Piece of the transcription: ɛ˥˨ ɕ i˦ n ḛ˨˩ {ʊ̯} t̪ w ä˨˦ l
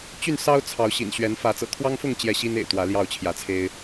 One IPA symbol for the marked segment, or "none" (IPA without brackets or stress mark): ɪ̯